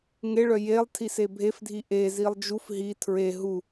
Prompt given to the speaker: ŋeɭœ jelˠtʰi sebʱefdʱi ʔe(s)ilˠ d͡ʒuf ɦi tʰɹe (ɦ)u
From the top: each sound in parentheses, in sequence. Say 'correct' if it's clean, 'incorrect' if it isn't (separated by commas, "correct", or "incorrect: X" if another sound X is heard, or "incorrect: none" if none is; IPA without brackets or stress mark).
incorrect: z, correct